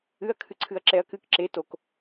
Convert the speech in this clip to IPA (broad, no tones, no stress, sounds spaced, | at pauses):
ɨ ɐ̯ kʰ ɨ ǀʰ ɨ ɐ̯ ǁ ɛ ɐ̯ k ɨ k ǁ e t o k